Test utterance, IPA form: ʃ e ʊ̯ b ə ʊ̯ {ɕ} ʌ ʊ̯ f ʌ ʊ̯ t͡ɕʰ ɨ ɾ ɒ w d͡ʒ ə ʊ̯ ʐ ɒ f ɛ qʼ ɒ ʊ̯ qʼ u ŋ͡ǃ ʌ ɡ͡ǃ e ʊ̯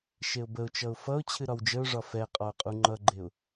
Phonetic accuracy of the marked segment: incorrect: t͡ʃ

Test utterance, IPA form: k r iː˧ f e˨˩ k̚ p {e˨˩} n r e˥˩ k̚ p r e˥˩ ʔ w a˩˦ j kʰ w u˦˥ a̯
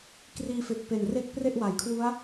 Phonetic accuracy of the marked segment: correct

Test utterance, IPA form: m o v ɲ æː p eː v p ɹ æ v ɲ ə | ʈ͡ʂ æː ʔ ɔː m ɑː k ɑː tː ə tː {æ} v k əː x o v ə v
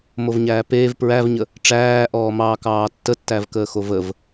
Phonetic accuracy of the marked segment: correct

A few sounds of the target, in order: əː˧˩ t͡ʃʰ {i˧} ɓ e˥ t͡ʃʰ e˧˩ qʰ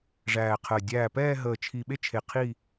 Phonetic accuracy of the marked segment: correct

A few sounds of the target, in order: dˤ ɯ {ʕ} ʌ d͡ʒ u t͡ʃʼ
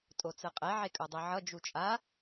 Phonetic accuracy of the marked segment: correct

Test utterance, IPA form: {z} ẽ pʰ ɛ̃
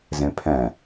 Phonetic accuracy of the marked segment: correct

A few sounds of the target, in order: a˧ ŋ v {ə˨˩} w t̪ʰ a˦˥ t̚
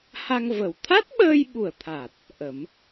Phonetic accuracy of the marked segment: correct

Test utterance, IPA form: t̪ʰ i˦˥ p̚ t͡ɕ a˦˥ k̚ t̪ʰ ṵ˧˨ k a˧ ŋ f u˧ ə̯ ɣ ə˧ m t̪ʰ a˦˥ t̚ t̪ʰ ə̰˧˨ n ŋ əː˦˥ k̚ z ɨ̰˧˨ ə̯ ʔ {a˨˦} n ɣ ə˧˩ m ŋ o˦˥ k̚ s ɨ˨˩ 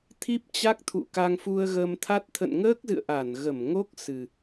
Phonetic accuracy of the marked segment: incorrect: a˧˩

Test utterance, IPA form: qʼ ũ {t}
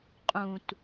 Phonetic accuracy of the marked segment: correct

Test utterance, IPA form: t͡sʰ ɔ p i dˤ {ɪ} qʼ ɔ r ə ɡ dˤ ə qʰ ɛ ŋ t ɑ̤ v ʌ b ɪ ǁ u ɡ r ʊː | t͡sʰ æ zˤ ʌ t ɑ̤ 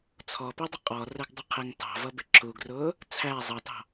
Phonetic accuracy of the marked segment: incorrect: ə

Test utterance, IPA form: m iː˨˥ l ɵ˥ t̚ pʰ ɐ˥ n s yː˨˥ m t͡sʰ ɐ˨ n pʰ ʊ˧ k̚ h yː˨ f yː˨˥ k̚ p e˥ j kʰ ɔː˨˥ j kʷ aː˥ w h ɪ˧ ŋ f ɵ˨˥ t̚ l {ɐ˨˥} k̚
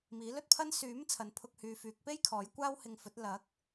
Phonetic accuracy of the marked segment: correct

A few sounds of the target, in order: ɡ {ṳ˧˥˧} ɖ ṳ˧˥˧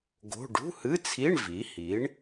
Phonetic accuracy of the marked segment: incorrect: o̤˧˥˧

